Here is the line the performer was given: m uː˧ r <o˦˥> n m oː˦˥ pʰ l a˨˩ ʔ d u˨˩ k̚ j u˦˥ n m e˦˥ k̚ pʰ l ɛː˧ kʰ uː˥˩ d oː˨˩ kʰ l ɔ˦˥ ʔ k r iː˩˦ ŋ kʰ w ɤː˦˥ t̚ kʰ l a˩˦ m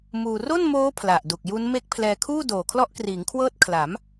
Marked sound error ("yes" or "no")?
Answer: yes